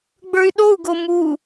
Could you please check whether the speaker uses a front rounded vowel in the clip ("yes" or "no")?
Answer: yes